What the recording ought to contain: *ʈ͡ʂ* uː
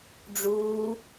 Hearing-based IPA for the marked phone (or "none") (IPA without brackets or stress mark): ɖ͡ʐ